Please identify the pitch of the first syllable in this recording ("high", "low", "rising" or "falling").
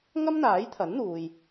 high